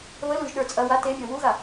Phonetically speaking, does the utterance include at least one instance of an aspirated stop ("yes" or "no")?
no